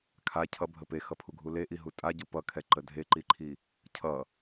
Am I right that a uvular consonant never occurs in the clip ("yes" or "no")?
yes